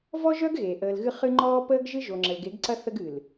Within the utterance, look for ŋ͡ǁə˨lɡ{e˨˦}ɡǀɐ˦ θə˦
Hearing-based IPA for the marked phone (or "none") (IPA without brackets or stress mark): e˨˦